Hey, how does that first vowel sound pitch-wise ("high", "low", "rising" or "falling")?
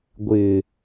low